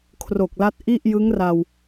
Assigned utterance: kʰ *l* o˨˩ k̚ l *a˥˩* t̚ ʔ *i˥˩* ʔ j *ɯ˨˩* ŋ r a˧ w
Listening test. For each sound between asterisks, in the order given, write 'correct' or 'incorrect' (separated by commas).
incorrect, incorrect, correct, incorrect